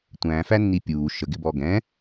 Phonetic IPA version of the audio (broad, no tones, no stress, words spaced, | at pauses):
tʷæ̃ fænːipʲuː ʃəɡɪbɔ ɡɛ̃